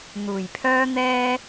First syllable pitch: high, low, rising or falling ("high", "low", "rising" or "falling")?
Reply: low